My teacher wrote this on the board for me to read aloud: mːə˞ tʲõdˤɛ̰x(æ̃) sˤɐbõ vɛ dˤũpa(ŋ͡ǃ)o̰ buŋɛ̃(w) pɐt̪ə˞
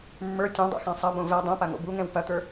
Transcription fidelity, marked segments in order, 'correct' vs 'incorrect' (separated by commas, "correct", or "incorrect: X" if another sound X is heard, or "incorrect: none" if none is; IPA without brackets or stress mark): correct, incorrect: ŋ, correct